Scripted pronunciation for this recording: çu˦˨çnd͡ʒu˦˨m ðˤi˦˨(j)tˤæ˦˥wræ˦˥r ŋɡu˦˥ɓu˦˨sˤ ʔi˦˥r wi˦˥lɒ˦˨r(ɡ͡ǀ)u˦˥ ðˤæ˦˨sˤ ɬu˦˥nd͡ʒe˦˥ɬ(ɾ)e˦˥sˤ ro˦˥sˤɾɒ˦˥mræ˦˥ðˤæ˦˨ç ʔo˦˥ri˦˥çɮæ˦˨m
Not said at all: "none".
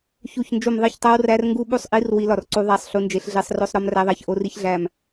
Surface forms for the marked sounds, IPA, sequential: ç, ǀ, ɮ

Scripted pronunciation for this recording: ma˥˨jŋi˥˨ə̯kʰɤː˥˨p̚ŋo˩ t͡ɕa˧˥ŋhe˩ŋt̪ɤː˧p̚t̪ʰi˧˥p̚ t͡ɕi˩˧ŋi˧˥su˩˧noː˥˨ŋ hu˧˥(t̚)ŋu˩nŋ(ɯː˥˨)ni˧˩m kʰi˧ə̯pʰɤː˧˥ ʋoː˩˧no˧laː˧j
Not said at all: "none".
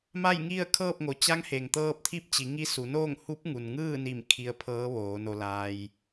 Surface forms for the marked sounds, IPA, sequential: p̚, ɯː˥˨

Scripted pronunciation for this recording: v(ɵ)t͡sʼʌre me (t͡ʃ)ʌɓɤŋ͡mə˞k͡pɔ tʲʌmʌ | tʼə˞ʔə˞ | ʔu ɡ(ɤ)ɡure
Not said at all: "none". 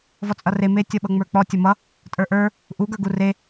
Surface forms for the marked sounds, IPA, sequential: ɔ, tʲ, ə˞

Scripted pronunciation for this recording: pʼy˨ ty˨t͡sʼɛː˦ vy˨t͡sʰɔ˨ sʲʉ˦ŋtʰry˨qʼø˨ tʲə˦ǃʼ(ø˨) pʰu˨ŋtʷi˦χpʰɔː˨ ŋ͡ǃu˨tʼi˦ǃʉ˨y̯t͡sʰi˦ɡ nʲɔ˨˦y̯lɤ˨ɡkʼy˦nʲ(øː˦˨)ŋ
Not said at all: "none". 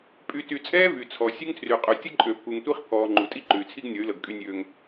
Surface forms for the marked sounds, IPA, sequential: ø˨, øː˦

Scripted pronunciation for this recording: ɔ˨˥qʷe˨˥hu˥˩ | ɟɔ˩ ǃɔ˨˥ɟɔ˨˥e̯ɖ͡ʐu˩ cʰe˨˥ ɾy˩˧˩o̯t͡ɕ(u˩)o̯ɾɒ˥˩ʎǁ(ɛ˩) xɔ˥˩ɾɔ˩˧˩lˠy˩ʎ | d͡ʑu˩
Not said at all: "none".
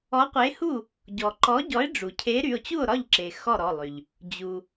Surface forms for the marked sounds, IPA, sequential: u˥˩, e˩

